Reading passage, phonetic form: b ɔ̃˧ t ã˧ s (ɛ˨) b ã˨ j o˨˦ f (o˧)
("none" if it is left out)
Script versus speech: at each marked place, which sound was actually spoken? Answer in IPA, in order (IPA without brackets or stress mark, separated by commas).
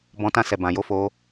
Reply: ɛ˨, o˧